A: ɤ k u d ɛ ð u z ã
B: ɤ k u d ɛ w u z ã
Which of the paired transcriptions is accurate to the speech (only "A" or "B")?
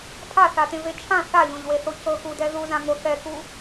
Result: A